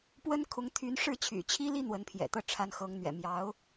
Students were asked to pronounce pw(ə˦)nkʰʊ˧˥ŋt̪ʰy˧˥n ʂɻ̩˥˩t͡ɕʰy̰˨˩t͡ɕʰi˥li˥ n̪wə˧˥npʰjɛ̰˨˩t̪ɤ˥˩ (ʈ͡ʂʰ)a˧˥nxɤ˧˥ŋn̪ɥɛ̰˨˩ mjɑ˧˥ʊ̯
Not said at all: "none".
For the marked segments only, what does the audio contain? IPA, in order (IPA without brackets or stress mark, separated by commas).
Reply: ə˥, ʈ͡ʂʰ